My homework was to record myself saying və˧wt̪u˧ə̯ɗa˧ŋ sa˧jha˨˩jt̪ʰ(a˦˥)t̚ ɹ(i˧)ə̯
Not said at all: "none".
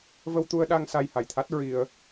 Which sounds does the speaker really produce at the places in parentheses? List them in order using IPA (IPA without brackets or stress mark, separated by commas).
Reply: a˦˥, i˧